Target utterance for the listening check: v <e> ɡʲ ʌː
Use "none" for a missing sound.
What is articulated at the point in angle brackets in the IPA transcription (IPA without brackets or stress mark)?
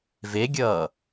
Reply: e